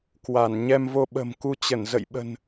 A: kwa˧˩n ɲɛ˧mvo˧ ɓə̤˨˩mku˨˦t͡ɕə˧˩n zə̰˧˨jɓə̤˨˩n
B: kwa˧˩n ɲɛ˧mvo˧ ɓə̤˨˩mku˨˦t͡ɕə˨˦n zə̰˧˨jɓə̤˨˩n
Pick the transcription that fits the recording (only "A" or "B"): A